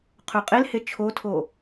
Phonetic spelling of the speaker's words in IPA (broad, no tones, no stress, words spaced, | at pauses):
qʰøqʼelhe t͡ʃʰotʰo